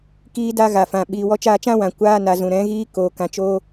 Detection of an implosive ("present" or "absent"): present